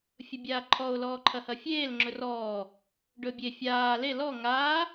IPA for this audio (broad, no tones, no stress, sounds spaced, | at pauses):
fʲ ɵ bʲ aː ǃʰ ɔ o̯ l ɔː ǃʰ ɐ h ɐ fʲ eː l ŋ͡ǁ ɵ r ɔː | ɖ ɵ bʲ e fʲ aː l e l ɔ ŋ aː